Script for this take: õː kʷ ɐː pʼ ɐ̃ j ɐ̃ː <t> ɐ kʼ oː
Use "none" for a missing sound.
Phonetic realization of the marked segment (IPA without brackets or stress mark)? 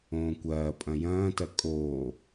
t